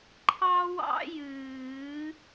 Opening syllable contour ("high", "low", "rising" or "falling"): high